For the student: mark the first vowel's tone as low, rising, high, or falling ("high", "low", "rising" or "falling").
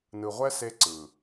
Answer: low